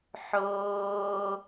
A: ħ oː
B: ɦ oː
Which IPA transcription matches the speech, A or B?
A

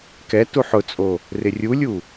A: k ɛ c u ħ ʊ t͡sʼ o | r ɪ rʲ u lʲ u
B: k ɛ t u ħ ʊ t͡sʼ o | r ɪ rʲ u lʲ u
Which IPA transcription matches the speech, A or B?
B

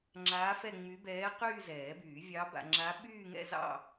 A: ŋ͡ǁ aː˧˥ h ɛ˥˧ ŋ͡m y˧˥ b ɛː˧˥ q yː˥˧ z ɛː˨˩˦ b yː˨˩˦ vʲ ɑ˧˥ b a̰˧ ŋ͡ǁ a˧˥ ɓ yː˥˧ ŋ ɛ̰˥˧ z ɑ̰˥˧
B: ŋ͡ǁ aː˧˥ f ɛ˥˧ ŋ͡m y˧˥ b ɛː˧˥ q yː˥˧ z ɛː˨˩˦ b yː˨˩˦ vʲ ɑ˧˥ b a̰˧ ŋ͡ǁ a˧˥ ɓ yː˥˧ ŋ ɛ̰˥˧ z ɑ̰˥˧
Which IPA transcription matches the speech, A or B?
B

